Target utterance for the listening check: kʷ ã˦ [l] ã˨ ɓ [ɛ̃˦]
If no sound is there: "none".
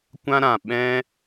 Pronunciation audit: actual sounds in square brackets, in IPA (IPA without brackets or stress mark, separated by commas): ɾ, ɛ̃˦